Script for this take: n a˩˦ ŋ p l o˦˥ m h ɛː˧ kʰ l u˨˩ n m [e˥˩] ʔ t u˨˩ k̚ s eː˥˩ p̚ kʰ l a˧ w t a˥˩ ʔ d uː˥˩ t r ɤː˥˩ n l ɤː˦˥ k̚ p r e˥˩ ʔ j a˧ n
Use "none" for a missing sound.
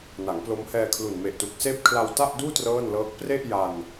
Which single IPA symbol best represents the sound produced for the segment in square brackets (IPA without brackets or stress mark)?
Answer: e˨˩